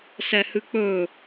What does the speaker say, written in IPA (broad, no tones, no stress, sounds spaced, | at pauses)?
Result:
s ɛ h ɨ k͡p ɵː